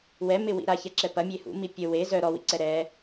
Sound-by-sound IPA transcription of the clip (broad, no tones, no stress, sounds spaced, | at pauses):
w ɛ m ɪ w ḭ ɾ a ç ɛ ǁ ɛ p ɐ mʲ e h ṵ m i pʲ ə w e z œ ɾ ɔ w ḭ ǀ ɛ ɾ ɛ